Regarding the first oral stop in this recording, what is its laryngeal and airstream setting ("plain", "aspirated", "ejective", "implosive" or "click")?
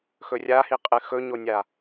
ejective